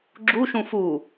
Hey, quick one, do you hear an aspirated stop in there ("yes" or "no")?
no